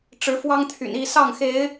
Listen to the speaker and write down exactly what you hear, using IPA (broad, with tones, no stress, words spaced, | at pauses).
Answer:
ʈ͡ʂɻ̩˨˦fwɑ˦ŋt̪ʰy̰˨˩n i˥˨sɑ˥˨ŋxe˨˦ɪ̯